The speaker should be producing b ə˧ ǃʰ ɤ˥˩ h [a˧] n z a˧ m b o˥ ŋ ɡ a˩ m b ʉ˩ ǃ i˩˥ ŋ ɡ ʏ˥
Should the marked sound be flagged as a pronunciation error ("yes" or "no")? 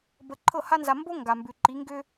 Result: yes